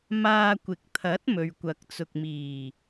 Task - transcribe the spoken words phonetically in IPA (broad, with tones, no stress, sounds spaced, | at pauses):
m aː˧ kʷ ɪ˨ k̚ t̪ʰ ɐ˨˥ t̚ m ɵ˨ ɥ kʷ ɐ˨ k̚ t͡s ʊ˨ k̚ m iː˨˩